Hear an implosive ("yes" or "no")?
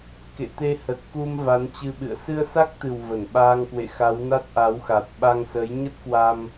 yes